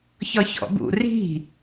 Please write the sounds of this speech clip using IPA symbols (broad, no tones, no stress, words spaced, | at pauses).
çɒçɔ̰bṵ ri̤